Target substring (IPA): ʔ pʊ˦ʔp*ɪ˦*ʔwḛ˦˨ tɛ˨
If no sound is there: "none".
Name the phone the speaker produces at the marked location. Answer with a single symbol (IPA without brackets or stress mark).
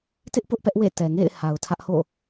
ɛ˦